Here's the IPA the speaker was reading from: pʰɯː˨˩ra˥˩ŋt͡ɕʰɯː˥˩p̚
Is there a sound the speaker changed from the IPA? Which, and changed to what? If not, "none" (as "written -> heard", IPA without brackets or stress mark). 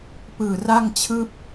pʰ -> p